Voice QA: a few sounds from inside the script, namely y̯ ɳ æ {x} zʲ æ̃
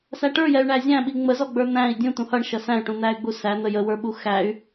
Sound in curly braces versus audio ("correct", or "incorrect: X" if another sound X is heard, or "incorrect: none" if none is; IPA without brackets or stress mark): incorrect: none